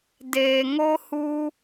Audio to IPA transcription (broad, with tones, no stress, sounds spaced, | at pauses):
d eː˨ ŋ o˦ h u˦